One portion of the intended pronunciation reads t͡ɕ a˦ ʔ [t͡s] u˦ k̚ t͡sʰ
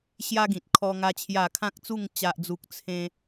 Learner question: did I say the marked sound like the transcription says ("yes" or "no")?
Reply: no